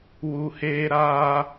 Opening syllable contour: low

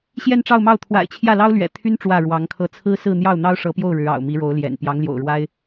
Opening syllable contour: falling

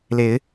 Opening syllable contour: rising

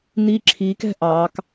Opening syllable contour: high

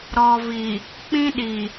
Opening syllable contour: low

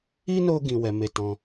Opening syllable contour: high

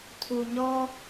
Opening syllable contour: low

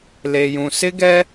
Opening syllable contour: low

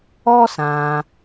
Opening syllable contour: high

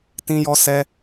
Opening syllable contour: high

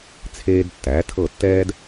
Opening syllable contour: high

